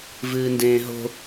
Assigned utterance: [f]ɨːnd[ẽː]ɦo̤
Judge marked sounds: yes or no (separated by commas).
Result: no, yes